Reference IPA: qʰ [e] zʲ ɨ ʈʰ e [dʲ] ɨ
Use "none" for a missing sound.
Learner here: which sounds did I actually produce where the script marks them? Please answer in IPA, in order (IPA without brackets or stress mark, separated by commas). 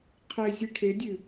e, dʲ